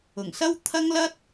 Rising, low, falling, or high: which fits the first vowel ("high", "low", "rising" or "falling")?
low